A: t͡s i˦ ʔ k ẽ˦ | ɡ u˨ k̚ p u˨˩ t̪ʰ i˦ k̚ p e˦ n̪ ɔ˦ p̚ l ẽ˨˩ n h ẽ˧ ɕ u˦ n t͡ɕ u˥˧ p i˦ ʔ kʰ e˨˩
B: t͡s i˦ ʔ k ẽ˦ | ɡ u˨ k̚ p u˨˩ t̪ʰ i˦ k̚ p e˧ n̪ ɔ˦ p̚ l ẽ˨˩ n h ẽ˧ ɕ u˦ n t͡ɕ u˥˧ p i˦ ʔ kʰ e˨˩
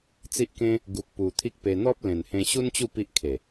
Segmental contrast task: B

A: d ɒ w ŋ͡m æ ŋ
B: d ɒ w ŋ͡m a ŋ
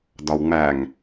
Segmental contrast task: A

